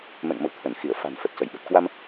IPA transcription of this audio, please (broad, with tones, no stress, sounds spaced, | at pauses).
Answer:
m ɛ̰˧˨ ŋ m ə̰˧˨ w t̪ʰ ə˧˩ n x i˧˩ ə̯ f a̤˨˩ n f ə˨˩ t̚ s ə˧˩ j ɓ ə˨˩ t̚ k w a˧ m